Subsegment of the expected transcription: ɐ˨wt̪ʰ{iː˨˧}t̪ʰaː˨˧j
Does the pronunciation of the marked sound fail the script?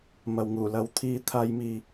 no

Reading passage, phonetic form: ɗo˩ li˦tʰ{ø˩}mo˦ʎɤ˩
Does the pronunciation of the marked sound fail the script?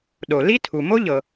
yes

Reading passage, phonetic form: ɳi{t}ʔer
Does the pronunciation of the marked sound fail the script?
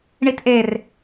no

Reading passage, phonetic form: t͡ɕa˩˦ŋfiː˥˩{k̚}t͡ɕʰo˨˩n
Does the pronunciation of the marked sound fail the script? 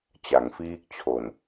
no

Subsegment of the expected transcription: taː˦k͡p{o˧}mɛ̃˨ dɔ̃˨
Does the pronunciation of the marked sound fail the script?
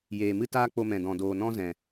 no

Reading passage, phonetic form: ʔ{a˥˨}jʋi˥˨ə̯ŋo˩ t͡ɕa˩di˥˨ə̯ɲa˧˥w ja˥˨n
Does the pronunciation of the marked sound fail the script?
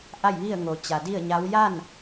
no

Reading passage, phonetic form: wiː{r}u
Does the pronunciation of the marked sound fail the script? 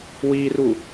no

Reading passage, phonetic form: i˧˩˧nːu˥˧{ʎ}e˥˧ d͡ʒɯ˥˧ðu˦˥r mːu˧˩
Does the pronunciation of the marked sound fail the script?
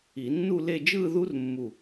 yes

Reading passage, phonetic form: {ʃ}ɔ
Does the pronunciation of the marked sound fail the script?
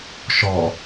no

